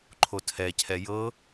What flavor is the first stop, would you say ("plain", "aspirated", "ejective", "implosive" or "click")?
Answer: click